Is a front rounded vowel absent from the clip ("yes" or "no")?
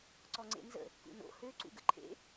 no